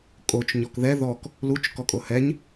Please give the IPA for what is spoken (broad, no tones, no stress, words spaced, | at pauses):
kʼot͡ʃ ɲɔkðɛ ðɔk | lut͡ʃ kɔkʼohɛɲ